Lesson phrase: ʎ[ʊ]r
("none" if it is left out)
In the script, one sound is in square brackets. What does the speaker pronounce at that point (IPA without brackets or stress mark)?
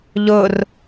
ʊ